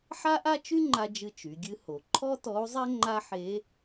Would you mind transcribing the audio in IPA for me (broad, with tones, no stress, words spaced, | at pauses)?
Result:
ħa˥ʔa˥t͡ʃy˥ŋ͡ǃa˧ d͡ʒɨ˧ t͡ʃy˩˧ɡʲɨ˧˥ ho˩ ǃʰɔ˥tɔ˧˥u̯zˤɛ˥ ŋ͡ǃa˥ħe˧˥